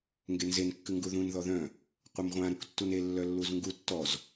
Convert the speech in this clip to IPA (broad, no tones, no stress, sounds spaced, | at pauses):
ŋ ɡ e n z e n kː ɨ ŋ ɡ u ð ũ n ð ɔ ð œ̃ | qʷ œ m ʁʷ ã ɾ u k tː u n e lː œ lː u z ŋ ɡ u tː ɔ z